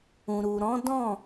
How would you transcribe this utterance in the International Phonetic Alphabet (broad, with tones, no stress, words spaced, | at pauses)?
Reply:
ũ˨ɾu˨ ɾɔ̃˨˦dɔ̃˦˨